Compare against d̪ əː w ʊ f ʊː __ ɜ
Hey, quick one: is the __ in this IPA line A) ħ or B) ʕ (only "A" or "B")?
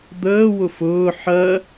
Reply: A